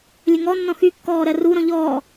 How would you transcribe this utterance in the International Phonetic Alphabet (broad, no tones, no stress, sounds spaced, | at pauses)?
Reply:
lʲ ə ŋ ɔ nː ɔ̃ x y kː ɔː ɾ ɜ r u ɾ ɔ̃ ʎ ɔː